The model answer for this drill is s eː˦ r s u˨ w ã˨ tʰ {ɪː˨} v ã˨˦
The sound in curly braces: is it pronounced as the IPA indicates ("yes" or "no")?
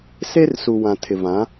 no